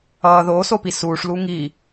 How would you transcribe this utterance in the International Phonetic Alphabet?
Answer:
ʌː ð oː s o p i s uː ʂ l u ŋ iː

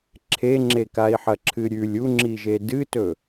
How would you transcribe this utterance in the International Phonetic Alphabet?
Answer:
ǁʰ e ŋ͡ǁ e k a i̯ ħ ɐ ǁʰ ɨ ɾʲ ʉ lʲ u ŋ͡ǁ i ʒ e d ɨ t ɵ

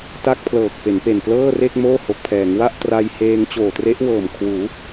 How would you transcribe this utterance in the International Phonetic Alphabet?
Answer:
t a˥˩ k̚ pʰ l ɤː˨˩ k̚ p e˩˦ n p e˨˩ n k l ɤː˥˩ r e˥˩ k̚ m oː˥˩ h o˨˩ k̚ pʰ ɛː˩˦ ŋ w a˥˩ ʔ t r a˧ j h eː˧ ŋ t͡ɕ oː˨˩ t r e˦˥ ʔ w ɤː˨˩ m kʰ w uː˩˦

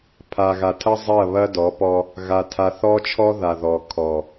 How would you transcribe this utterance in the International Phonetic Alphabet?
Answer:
pʰ a˨ ɣ a˨ tʰ ɐ˦ zˤ ɐ˦˨ β ɐ˦ d ɔ˨˦ p ɔ˦ | ɣ a˨ tʰ a˨ θ ɔ˦ t͡ʃʰ ɔ˦ ð a˨ ð ɔ˨ kʰ ɔ˨

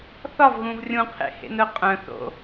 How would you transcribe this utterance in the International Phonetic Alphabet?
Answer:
θ ɒ v ɣ ũ v rʲ ũ qʰ ḛ h ḛ n œ qʼ œ̃ θ o̰

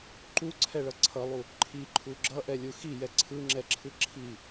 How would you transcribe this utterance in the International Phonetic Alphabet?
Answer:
ǃ u ǀʰ ɛ ɭ ʌ ǀʰ ʌ lˠ u | ǃʰ i ǃʰ u ɡ͡ǁ ʌ ʔ ɛ lʲ u x i j ɛ ǀʰ ɯ ŋ͡ǁ ɛ ǁʰ ɯ ǁʰ i

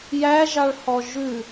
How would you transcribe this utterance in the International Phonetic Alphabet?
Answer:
j æ ʒ ɑ ɭ h ɔ ʒ ʉ

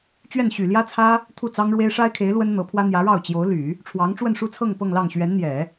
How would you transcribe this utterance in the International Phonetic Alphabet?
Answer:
t͡ɕ ɥ ɛ˥˩ n ɕ y˨˩ l j ä˥ t͡sʰ ä˥ | t̪ʰ u˥˩ t͡s ɑ˥ ŋ ɻ w e˥ ɪ̯ ʂ a˥ ɪ̯ kʰ e˧˥ ɪ̯ l w ə˥ n n̪ ɤ˧˥ pʰ w ä˥ n̪ j ä˧˥ ɻ ɑ˥˩ ʊ̯ t͡ɕ j o˧˥ ʊ̯ l y˨˩˦ | ʈ͡ʂʰ w ɑ˧˥ ŋ ʈ͡ʂ w ə˥˧ n ʂ u˥˧ t͡sʰ ɤ˥˧ ŋ p ɤ˥˧ ŋ l ɑ˥˩ ŋ ɕ ɥ ɛ˧˥ n n̪ j ɛ˨˩˦

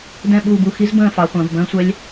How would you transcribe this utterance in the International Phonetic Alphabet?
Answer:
d ɛ̃˦˨ ɓ uː˦˨ b u˦˨ x i˦˥ z b ə̃ː˦˨ f ɑ˩˧ χʷ ə̃ː˩˧ v b ə̃ː˦˥ sʷ ɛ˦˥ lʲ

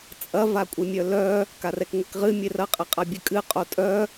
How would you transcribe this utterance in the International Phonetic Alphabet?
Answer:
t͡sʼ ɐ v a kʷʼ ɘ mʲ œ l œ | k a r ɛ k ŋʷ ɛ k ʁ ɨ mʲ e r ɐ qʼ ɘ qʼ a bʲ ɘ kʼ ɨ qʼ o tʼ œ

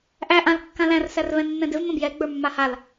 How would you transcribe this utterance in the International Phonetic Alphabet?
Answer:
ʔ æ ʔ ã l kː ã l æ̃ r s æ r v ɛ̃ nː ɛ̃ d ɪ v m ə̃ b j ɛ ɡ͡b ə˞ mː a h a l

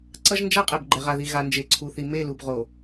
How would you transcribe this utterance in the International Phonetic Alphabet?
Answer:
ǀ ʌ˦ ʒ n d͡ʒ a˦ qʼ ɛ˨ b ɡ͡ǃ ɛ˨ ʁ a˨ ð i˨ ɣ a˨ n d͡ʒ e˨ ǀʰ u˨ θ i˨ m e˦˨ l u˨ b ʁ o˨

